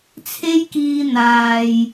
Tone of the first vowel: high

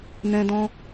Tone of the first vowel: high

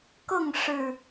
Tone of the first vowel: falling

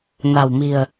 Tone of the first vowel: low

